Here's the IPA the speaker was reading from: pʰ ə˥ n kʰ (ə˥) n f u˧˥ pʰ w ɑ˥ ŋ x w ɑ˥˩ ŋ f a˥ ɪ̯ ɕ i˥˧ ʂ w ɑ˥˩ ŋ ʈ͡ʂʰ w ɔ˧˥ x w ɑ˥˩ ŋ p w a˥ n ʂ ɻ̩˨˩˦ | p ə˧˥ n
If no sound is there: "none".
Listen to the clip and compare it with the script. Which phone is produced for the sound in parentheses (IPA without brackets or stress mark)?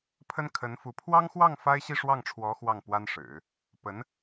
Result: ə˧˥